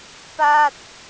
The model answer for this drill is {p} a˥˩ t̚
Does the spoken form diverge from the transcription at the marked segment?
no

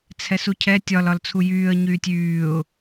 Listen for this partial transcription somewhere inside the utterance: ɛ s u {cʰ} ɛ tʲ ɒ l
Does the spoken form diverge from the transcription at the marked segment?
no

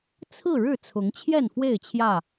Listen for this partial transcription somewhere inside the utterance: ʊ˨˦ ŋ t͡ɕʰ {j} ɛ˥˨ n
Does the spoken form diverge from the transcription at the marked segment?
no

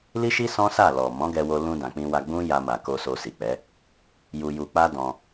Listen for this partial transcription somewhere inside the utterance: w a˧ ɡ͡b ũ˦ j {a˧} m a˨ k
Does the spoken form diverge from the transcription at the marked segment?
no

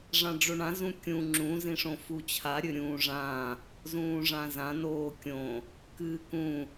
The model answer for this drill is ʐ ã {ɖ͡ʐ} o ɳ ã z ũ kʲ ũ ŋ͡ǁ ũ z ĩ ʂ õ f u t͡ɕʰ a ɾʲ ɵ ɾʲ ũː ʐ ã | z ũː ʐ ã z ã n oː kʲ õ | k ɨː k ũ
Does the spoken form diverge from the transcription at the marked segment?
no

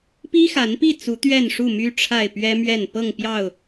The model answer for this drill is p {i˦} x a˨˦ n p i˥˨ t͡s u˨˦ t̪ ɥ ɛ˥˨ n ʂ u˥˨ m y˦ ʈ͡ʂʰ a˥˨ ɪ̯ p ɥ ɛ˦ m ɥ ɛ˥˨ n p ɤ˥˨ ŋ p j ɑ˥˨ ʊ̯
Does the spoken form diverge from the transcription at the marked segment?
no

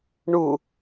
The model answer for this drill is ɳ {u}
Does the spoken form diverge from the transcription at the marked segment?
no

